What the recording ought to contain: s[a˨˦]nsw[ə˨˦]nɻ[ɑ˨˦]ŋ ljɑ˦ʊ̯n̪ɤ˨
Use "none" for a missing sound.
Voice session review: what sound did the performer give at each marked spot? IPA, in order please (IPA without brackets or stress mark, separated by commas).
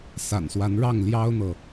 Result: a̰˨˩, a˨˦, ɑ˥˨